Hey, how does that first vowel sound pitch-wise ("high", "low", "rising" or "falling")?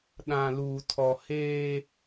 low